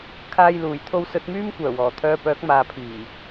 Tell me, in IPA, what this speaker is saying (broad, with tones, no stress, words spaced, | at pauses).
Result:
kʰaː˧jluː˨˩jt̪ʰo˧w sɵ˨˥t̚myː˥m kʷœː˨˩wɔː˨˩t̪ʰœː˧pœː˨˥k̚ maː˨pʰiː˨˩